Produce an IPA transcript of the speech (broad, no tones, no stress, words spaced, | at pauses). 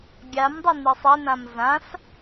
ɡʲamdˤʌ nisˤɛnãm zãs